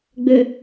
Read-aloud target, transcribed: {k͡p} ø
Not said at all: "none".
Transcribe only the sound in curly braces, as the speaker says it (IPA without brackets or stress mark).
ɡ͡b